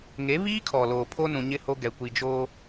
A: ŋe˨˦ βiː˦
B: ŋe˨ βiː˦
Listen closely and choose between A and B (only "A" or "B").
A